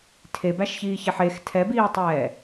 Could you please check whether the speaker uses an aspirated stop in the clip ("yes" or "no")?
yes